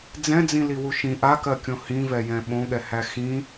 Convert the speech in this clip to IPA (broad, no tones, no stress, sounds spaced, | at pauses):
d͡z ɛ̃ d͡z ĩ l i w u ʃ ĩ ʔ a k ɜ kʲ õ h ĩ v ɛ j ɛ̃ ɓ õ ɠ ɛ h æ x ĩ